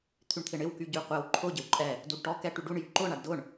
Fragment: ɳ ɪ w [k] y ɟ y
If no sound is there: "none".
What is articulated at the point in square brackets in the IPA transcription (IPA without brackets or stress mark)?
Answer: k